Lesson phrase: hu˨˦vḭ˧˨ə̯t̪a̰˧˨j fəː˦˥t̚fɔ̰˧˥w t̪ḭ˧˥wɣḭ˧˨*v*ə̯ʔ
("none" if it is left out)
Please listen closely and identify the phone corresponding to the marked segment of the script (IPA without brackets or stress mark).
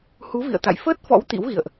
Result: none